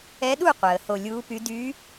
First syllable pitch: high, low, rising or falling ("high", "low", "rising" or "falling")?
rising